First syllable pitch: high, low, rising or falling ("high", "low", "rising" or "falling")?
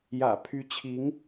low